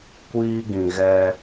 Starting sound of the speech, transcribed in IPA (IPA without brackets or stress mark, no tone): kʷ